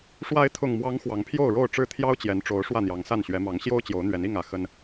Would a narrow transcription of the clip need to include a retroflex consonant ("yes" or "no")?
yes